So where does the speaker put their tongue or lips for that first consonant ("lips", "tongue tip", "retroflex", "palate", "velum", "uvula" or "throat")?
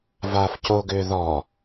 lips